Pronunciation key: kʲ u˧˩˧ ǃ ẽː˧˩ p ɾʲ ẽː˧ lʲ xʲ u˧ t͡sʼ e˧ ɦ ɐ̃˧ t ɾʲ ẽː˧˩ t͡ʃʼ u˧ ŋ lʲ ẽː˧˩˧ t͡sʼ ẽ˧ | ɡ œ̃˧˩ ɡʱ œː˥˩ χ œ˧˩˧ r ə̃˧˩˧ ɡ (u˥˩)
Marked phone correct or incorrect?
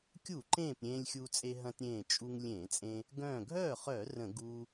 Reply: incorrect